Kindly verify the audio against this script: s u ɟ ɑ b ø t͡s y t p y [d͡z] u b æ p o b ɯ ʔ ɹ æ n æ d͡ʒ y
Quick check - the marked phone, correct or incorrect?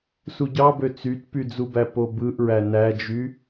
correct